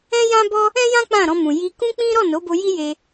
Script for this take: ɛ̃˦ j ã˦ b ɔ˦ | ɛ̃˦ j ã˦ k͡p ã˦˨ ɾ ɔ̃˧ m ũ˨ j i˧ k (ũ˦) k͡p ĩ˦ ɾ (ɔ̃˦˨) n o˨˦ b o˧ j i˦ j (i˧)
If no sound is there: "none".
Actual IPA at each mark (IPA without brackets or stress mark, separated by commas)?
ũ˦, ɔ˦˨, e˧